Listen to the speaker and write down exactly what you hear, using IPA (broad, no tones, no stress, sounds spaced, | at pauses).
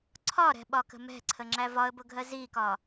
ǀʰ ɒ ɾ ɛ̤ ɓ ɒ k ə̤ m ɛ̤ ǀʰ ə ŋ͡ǁ æ v ɒ ə̯ b ʊ ɡʱ ɜ z i k ɒ